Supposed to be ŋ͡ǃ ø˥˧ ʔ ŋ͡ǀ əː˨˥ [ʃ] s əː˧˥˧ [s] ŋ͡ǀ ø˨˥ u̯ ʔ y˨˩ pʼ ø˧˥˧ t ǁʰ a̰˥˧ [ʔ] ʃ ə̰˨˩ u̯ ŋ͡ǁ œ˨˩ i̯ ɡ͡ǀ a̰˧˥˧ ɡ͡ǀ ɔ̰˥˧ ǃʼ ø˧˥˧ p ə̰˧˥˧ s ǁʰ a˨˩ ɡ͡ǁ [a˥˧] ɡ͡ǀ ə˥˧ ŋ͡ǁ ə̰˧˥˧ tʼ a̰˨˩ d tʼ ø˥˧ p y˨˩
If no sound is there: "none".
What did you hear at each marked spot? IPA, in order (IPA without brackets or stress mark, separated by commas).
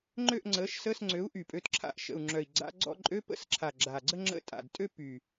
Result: ʃ, s, ʔ, a˨˩